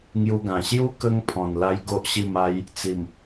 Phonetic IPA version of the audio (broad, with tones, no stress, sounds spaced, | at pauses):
ŋ j u˧ ɡ ã˨˩ ɕ j u˦ k ə˧ ŋ pʰ ɔ̃˨˩ n l a˦ j ɡ o˦ ʔ ɕ i˥˧ m a˦ j | t͡s i˨˩ m